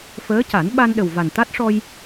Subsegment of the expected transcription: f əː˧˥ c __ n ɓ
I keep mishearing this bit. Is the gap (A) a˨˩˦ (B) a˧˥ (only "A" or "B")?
A